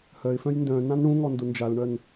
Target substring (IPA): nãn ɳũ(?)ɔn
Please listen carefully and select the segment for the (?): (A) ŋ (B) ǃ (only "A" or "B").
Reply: A